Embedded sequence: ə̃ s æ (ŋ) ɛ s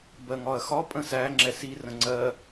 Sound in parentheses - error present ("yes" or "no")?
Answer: yes